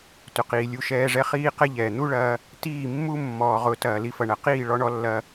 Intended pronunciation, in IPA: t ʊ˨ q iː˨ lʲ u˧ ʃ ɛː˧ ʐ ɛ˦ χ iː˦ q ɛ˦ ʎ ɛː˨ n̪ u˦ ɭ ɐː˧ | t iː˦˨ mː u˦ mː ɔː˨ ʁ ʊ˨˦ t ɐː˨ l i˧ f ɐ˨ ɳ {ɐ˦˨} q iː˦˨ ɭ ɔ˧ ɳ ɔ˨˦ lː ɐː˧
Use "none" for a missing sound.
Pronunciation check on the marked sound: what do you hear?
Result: ɐ˨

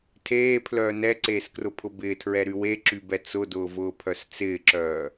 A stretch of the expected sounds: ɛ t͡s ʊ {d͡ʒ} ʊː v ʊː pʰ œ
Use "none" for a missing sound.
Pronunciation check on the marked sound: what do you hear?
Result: d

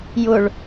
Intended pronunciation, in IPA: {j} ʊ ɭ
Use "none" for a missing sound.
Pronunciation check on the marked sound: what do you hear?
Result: j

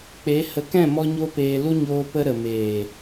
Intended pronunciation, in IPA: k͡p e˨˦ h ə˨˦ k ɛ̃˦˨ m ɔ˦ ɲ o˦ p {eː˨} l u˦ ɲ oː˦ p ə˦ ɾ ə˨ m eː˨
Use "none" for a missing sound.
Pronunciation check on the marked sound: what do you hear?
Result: eː˧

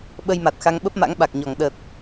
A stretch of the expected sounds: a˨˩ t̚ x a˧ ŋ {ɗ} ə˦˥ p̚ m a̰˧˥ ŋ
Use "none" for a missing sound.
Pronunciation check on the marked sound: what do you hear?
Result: ɓ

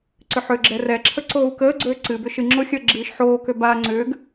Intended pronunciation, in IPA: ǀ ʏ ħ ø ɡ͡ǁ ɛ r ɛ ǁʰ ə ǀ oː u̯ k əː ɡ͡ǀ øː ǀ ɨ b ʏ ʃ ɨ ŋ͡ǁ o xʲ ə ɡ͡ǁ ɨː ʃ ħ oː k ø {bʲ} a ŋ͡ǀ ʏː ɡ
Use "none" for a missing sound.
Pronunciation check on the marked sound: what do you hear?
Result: b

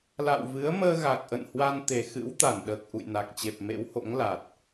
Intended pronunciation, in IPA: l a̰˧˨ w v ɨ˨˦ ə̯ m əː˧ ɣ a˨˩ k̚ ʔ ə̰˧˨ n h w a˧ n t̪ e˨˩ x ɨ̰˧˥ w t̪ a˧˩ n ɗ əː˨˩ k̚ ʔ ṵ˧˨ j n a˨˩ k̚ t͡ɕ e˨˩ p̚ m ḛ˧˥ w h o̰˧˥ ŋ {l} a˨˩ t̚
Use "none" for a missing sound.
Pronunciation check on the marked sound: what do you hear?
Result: l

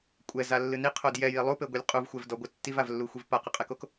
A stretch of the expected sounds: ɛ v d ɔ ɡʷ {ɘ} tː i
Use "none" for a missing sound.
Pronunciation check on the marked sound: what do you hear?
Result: ɘ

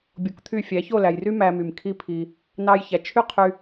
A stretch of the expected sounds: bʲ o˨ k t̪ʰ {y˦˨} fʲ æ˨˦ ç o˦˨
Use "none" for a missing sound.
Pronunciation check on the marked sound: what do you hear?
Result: y˦˨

